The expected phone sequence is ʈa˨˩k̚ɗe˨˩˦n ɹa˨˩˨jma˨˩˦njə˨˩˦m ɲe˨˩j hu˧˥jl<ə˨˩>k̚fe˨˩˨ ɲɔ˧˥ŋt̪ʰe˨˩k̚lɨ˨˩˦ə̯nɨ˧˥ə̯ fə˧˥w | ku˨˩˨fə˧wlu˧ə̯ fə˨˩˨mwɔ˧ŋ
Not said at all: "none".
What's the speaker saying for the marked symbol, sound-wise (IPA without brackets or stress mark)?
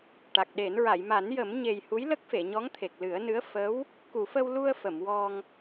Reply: ə˦˥